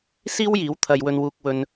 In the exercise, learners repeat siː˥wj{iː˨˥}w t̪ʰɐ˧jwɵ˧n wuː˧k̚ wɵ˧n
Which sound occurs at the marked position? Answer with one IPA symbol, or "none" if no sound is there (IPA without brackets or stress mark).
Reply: iː˨˥